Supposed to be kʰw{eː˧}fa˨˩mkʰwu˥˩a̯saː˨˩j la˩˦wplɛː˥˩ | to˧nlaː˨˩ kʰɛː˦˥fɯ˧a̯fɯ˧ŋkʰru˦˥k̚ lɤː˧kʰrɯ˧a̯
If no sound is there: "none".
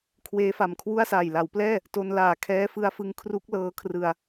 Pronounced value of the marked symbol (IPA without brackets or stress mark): eː˦˥